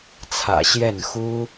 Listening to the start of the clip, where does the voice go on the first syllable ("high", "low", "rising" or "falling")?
low